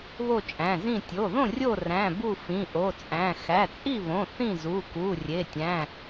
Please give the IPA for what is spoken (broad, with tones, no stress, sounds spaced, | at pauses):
β o˥˨ t͡ʃʼ æ̃˩˧˩ z ĩ˥˨ tʲ o˩˧˩ ð õ˥˨ rʲ o˥˨ r æ̃˩˧˩ b u˥˨ f ĩ˩˧˩ ʔ o˩˧˩ t͡sʼ æ̃˩˧˩ x æ˩˧˩ t͡sʼ i˥˨ β õ˩˧˩ θ ĩ˥˨ z u˩˧˩ k u˩˧˩ rʲ e˩˧˩ tʲ æ̃˩˧˩